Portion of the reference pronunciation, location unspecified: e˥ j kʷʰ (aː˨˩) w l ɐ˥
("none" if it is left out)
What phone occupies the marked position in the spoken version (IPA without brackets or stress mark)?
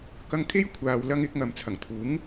aː˨